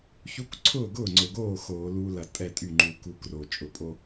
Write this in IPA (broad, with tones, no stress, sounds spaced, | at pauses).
ç u˦ k ǀʰ ʊː˥˩ ɡ ʊː˥˩ ŋ͡ǀ ʊ˨˩ ɡ oː˥˩ x oː˧˩˧ l uː˦ l ɐ˧˩˧ tʼ ɛ˥˩ tʼ y˥˩ ŋ͡ǃ u˧˩˧ k u˦ k r o˨˩ t͡ʃʼ ʊ˨˩ pʼ o˦